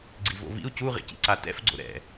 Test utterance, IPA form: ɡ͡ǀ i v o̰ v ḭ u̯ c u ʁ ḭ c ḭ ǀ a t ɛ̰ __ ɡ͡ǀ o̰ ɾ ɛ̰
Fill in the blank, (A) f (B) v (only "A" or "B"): A